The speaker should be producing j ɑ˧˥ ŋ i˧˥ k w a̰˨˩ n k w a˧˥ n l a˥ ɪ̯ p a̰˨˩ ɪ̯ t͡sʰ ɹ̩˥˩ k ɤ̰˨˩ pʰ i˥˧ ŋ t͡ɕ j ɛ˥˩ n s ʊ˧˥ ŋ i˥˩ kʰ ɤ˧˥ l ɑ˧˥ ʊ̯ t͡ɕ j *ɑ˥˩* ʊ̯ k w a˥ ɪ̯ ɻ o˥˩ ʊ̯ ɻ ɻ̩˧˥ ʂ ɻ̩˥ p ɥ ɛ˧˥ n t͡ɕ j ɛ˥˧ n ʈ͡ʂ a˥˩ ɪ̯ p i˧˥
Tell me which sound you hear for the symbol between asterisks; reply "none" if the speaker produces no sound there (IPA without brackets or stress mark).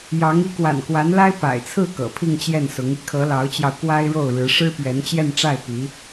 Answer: ɑ˧